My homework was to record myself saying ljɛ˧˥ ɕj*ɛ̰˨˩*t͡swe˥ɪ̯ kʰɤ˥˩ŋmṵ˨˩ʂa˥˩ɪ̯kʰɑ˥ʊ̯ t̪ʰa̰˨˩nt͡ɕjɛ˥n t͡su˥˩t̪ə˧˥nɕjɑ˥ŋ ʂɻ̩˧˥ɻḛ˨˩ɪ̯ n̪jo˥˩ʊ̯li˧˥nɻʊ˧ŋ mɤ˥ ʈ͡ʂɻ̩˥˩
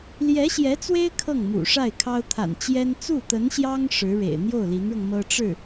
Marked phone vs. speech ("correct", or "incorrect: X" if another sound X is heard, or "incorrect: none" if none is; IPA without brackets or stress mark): incorrect: ɛ˧˥